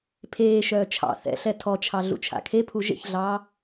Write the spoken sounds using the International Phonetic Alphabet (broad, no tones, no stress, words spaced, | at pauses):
pʰeːʃœː t͡ʃʰɑ̰ θɛ̰ɬɛ tʰɔt͡ʃʰɑ ɮṵt͡ʃʰa̰kʰepʰu ʒḛçɮɑː